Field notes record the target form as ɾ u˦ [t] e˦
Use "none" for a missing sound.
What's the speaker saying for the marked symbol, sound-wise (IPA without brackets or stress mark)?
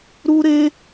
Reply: ɾ